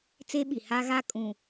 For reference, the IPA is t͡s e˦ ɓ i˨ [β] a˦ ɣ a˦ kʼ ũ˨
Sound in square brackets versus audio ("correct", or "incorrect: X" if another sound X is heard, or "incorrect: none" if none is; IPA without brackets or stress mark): incorrect: h